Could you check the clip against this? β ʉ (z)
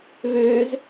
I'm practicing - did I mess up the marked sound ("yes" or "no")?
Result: no